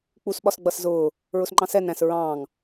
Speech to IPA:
k͡p u s ɓ ɒ s ɡ͡b ʌ s z ʊː | ɹ ʊ s ŋ͡ǃ ɑ̃ s ɛ n æ̃ s ɹ ɑ̃ː ŋ

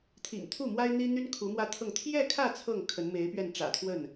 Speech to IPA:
t̪ʰ ḭ˨˩ ŋ t̪ʰ u˥˩ m w a˥ ɪ̯ n̪ i˥ n̪ y˥ n kʰ u˧˥ m w ä˥ t̪ʰ ɤ˥˧ ŋ t̪ʰ j ɛ˥˧ kʰ ä˥˧ t͡sʰ ɤ˥˩ ŋ kʰ ə˧˥ n m e˧˥ ɪ̯ p ɥ ɛ˥˩ n ʈ͡ʂ ä̰˨˩ t̪ʰ w ə˥˩ n

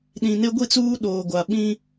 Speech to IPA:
ɗ ĩ˨ n e˦ ɡʷ i˦˨ t͡s uː˦ ɗ oː˨ ɡʷ a˨ ɓ ĩ˦

